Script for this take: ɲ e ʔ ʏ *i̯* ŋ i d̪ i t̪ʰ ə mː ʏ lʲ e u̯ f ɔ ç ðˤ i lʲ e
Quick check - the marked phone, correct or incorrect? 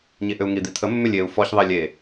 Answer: incorrect